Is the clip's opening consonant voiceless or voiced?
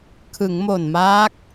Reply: voiceless